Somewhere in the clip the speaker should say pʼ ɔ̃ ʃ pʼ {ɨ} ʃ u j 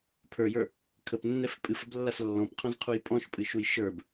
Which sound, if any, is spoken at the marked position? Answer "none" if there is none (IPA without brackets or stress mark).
ɨ